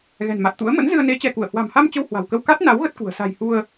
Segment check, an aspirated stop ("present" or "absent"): absent